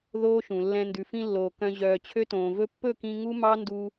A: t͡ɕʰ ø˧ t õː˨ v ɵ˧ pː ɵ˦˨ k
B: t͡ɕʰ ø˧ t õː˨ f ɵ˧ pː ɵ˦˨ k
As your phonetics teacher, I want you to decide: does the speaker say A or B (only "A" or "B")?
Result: A